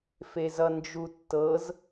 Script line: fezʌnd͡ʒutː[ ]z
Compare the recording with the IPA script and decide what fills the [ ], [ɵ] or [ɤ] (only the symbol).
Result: ɤ